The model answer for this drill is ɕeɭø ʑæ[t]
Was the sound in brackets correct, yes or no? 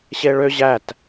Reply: yes